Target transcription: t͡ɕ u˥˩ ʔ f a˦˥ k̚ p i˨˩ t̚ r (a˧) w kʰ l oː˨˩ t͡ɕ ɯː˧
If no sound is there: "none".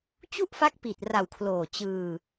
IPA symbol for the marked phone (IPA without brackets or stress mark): a˨˩